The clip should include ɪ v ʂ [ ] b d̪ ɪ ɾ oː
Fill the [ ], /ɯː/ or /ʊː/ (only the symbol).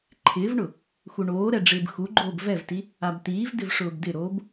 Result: ʊː